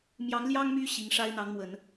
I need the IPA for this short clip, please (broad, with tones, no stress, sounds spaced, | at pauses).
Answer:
m j ɑ˧˥ ŋ l j ɑ˥ ŋ m y˥ ɕ i˧˥ ŋ ʂ a˥ ɪ̯ n̪ ɑ˧˥ ŋ m w ə˨˩˦ n